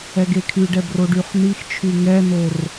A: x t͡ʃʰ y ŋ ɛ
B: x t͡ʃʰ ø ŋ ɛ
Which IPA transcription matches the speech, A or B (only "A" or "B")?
A